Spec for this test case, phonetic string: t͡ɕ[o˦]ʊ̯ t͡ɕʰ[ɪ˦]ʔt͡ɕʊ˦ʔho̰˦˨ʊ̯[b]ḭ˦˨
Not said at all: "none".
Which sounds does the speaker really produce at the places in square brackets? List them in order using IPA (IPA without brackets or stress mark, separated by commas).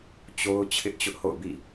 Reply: o˦, ɪ˦, b